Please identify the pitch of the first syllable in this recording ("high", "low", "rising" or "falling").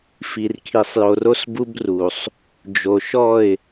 low